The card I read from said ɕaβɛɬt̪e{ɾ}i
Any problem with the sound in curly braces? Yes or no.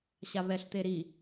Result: no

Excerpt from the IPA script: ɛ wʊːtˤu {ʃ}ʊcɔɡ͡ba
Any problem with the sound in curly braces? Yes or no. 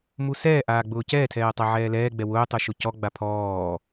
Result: no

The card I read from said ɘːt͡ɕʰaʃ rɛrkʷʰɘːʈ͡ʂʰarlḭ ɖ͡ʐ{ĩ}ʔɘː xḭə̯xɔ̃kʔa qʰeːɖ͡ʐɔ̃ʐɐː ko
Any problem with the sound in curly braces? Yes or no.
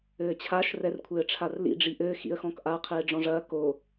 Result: yes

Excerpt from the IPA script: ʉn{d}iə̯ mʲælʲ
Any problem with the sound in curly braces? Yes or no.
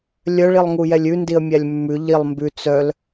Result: no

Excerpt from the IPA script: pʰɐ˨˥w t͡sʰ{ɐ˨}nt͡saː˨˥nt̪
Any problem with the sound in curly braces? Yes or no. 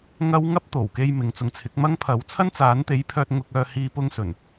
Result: yes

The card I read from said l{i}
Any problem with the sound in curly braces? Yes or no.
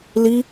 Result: no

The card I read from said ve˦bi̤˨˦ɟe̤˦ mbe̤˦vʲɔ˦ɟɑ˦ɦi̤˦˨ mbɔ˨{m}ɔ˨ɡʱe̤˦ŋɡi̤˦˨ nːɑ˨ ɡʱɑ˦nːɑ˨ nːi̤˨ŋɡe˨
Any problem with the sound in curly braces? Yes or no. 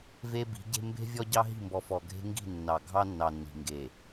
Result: yes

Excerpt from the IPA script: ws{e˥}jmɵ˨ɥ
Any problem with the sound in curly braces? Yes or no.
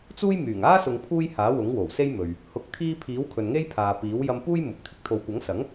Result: no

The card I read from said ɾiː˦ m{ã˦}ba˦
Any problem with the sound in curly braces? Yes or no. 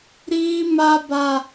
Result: yes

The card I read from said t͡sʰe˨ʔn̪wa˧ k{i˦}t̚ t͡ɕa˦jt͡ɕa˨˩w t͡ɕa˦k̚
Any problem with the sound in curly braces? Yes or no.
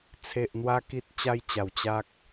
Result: no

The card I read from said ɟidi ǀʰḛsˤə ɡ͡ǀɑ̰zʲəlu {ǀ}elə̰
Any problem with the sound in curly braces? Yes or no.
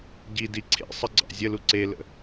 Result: no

